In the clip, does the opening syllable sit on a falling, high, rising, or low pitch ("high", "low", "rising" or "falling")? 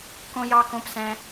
high